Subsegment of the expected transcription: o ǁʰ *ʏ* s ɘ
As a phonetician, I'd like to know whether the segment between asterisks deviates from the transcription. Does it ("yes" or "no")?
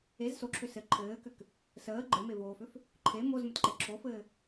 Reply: no